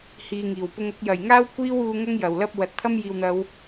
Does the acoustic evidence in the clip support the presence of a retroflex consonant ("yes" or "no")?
no